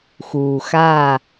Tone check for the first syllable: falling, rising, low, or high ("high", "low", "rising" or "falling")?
low